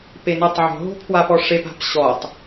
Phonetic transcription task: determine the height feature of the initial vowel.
mid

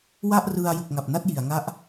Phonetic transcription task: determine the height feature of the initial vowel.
low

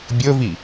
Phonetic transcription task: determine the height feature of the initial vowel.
mid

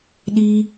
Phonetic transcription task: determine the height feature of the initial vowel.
high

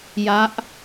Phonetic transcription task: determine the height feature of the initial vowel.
low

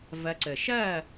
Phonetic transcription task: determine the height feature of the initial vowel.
low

